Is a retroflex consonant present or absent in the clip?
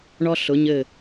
present